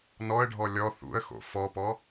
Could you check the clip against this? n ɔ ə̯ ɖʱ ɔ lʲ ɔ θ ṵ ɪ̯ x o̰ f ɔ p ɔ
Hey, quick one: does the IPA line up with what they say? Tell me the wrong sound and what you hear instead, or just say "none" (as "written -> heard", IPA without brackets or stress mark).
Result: ɪ̯ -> ə̯